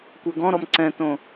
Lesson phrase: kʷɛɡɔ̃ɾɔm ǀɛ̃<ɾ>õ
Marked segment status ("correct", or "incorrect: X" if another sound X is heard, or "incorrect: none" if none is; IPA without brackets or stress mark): incorrect: t